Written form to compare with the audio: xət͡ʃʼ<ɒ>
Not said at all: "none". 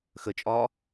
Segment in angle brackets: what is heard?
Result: ɒː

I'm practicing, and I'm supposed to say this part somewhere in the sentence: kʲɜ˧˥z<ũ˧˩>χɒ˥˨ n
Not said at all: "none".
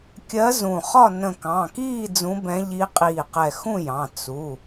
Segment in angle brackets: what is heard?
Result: ũ˧˩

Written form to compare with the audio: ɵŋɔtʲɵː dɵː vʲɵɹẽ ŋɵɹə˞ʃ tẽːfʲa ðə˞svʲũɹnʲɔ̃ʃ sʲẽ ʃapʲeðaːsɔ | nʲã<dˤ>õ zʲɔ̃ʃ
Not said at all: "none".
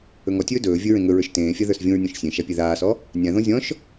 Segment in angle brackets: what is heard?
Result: ð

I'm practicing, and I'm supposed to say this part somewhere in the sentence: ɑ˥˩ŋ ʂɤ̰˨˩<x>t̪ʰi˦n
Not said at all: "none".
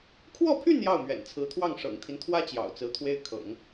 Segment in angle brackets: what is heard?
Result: ŋ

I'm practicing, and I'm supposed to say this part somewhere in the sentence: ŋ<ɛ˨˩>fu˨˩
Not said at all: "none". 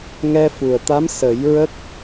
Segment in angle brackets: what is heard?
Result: ɛ˧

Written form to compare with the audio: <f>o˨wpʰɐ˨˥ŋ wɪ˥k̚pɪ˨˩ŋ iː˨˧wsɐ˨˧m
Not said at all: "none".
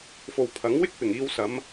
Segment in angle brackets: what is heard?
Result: f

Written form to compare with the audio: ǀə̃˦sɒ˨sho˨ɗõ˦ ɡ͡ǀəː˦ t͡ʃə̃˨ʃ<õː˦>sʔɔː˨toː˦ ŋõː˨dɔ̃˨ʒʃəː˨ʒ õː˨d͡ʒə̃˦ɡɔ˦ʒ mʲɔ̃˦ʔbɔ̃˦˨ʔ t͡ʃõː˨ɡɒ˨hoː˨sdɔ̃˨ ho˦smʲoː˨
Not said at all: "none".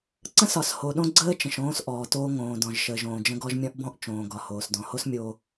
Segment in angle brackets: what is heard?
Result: õː˦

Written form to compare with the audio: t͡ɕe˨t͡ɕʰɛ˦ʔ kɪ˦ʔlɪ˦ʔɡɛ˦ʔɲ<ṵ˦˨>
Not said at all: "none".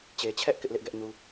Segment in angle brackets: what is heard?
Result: u˦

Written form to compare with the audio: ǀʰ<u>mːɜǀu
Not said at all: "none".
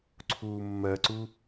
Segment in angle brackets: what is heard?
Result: uː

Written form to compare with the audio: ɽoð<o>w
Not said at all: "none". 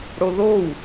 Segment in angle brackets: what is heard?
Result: o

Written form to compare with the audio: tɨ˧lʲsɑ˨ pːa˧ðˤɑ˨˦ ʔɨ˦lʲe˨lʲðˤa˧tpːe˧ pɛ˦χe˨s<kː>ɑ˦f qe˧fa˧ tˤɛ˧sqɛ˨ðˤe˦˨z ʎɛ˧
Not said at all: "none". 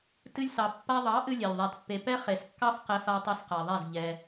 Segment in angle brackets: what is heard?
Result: kː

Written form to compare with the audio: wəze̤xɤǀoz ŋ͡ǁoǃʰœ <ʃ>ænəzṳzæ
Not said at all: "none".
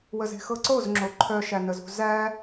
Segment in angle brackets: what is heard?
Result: ʃ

